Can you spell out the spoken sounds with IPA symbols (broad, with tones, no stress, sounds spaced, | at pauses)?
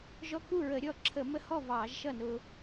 ʒ ɔ˧ k u˥˩ ɹ ə˧˩˧ ɾʲ ɔ˥˩ ǁʰ ə˧˩˧ m ə˧ h ɔ˥˩ v ɑː˧˩˧ ʒ ʃ ʌ˥˩ n ʊ˧